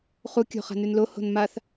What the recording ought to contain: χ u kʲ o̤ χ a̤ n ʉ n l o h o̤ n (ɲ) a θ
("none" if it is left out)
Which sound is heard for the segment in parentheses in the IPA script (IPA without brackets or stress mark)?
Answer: m